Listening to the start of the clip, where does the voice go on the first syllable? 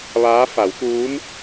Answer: rising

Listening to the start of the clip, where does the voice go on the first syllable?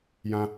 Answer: high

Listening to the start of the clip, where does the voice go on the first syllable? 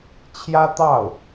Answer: high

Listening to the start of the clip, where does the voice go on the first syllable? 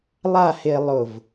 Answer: falling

